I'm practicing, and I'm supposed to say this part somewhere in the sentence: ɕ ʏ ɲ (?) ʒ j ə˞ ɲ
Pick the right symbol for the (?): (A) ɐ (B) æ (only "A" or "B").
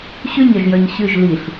A